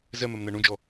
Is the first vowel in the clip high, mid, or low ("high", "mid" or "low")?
mid